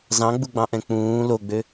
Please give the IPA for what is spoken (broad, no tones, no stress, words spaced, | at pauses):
zɑ̃ɡ͡buɡ͡bɑ̃ʔɛ̃ k͡pũː loɡ͡bø